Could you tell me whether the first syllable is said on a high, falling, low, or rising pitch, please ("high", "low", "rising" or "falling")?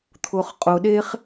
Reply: low